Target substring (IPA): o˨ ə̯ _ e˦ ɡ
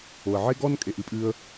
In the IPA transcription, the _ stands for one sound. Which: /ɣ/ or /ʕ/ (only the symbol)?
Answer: ʕ